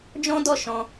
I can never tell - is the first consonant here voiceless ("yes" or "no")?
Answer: no